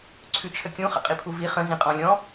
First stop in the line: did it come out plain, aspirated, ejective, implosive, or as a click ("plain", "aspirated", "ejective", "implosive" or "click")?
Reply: click